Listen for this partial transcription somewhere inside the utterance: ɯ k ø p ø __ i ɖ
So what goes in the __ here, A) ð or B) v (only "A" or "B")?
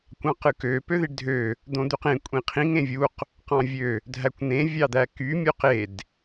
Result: A